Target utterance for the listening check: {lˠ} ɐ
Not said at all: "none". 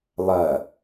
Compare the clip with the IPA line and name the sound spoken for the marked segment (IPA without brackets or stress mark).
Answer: lˠ